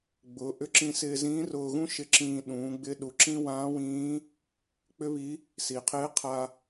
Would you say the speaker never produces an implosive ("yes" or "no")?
no